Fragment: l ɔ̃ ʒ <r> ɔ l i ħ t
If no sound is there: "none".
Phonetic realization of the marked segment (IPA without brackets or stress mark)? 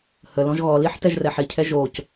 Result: ɣ